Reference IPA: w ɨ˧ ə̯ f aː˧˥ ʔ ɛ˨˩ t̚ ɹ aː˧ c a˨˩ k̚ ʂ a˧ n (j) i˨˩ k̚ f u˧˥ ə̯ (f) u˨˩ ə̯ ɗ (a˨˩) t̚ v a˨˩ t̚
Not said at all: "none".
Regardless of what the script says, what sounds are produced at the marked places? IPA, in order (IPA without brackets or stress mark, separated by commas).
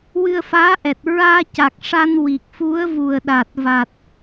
w, v, a˨˩